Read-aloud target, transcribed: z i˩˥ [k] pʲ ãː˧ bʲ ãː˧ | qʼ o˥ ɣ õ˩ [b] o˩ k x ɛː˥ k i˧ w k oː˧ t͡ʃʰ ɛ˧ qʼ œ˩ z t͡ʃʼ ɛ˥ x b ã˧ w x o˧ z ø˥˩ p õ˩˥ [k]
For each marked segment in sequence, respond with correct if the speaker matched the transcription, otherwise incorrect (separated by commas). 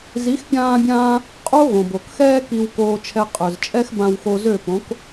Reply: incorrect, correct, correct